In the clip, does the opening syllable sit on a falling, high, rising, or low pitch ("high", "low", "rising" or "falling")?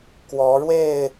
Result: rising